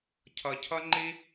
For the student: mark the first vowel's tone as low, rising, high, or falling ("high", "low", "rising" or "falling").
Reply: low